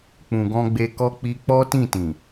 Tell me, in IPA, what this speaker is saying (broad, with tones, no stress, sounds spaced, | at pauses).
k͡p ũ˨ ɡ ɔ̃˧ ɡ͡b e˧ k ɔ˦ k͡p i˦ k͡p ɔ˦ t ĩ˦˨ t ĩ˨